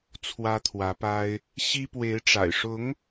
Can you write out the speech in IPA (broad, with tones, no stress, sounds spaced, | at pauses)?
t͡sʰ w ä˥ t̪ʰ w ä˧˥ p a˥ ɪ̯ | ɕ i˥ p w e˧˥ ɪ̯ ʈ͡ʂ a̰˨˩ ɪ̯ ʂ ʊ˧˥ ŋ